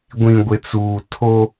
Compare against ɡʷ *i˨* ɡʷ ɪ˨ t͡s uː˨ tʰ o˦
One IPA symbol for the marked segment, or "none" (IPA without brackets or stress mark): ĩ˨